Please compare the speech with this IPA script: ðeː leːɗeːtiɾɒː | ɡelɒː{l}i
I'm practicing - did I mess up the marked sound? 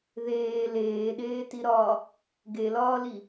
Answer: no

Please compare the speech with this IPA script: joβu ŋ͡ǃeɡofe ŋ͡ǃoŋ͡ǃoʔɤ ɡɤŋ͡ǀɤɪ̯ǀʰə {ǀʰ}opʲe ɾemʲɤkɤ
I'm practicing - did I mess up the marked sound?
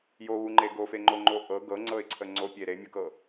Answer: yes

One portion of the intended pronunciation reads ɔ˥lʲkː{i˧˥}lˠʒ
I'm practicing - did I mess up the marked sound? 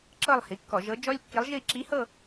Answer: no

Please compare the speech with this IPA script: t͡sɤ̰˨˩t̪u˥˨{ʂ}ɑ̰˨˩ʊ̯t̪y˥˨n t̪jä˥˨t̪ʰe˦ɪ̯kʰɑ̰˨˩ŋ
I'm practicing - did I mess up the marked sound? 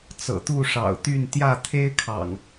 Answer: no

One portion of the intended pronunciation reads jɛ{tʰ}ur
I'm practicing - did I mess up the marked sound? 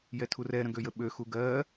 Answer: no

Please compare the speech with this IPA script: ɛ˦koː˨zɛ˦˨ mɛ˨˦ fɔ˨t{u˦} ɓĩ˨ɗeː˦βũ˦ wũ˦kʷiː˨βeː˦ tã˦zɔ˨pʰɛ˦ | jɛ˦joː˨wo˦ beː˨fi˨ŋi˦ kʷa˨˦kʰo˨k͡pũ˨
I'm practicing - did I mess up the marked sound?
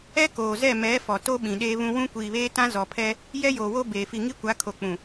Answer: yes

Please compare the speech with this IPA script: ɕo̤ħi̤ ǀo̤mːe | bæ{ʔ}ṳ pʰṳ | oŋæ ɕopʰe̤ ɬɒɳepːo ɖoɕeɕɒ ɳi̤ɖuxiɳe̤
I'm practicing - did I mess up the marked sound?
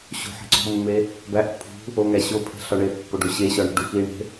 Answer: no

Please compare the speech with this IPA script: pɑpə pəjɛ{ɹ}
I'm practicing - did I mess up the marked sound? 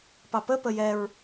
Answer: no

